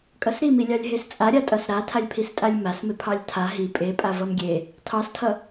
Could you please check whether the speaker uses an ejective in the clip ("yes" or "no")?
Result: yes